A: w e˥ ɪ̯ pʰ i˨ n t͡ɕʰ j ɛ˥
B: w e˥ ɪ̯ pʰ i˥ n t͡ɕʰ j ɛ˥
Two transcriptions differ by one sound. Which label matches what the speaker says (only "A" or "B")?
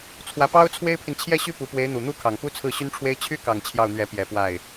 A